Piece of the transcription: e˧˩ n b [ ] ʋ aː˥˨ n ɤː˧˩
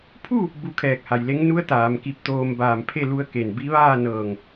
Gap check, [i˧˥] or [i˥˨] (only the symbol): i˧˥